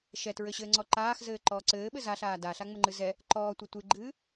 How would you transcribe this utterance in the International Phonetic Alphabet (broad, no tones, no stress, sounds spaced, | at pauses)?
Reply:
ʃ ɛ t ɹ ɘ ɕ ɘː ŋ͡ǀ ɔ ǃ aː x z ɘː ǃ ɔː ǀ ɘː ɓ ɘ z a ɬ aː d a ɬ a ŋ͡m ɘ ŋ͡ǃ ɨ z ɛ | ǃ ɔː tʷ ɘ tʷ ɨ ɡ͡ǃ ɨː